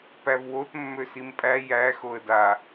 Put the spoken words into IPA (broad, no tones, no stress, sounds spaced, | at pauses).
p æ v w o t mː ø s i m pʼ æ j æ x o ə̯ d a